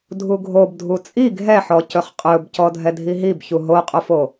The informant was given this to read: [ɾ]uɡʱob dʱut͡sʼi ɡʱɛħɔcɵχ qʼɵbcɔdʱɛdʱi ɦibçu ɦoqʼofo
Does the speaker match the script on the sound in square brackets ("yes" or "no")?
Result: no